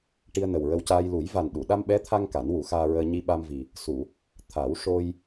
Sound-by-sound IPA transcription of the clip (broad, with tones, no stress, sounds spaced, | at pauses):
ʈ i˧ ə̯ n ə˨˩ w ɹ ə˧ w c aː˧ j l u˨˩˦ j v a˨˩ n ɗ u˨˩˨ ɗ a˧ m ɓ ɛ˧˥ t̪ʰ a˧ ŋ k a˨˩˦ n w u˨˩˦ x aː˧ ɹ əː˧ ɲ i˧ ɓ a˧ m v i˨˩ | s u˨˩˨ | t̪ʰ a˨˩˦ w ʂ o˧ j